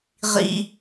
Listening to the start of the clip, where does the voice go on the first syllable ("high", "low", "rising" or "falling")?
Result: high